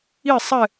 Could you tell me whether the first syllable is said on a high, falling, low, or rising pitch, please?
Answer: falling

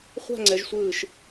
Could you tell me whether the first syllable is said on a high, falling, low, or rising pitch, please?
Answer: falling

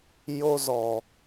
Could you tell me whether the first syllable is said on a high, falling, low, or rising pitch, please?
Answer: high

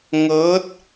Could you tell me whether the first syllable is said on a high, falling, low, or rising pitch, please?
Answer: rising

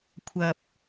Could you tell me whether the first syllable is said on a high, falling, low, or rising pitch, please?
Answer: low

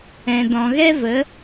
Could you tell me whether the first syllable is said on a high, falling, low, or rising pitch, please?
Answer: low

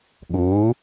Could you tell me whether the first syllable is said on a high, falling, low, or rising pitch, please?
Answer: rising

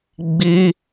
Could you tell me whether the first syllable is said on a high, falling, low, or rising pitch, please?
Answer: high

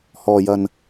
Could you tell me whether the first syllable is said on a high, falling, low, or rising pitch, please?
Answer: low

